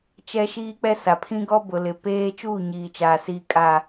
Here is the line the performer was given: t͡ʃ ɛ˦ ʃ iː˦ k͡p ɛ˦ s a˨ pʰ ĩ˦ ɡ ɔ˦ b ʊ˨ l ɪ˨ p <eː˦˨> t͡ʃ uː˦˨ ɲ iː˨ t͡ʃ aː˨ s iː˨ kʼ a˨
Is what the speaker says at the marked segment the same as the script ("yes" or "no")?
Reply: no